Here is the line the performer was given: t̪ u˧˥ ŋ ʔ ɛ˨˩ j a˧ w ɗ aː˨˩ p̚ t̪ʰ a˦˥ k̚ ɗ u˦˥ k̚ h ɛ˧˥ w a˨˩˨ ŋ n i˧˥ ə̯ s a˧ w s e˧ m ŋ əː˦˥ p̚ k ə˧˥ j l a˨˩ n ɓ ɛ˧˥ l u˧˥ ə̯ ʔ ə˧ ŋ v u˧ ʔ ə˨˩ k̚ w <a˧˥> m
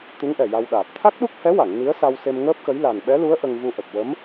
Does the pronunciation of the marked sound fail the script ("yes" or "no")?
yes